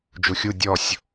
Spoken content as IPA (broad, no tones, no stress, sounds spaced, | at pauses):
d͡ʒ u xʲ u dʲ ɔ sʲ